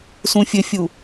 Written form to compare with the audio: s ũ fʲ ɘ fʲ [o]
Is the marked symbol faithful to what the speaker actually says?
no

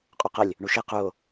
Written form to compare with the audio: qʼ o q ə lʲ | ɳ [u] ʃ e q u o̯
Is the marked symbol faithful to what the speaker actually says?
yes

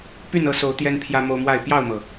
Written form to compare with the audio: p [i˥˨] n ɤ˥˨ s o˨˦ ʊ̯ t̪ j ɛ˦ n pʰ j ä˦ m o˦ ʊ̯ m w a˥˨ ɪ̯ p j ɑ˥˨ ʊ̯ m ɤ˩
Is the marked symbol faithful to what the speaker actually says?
no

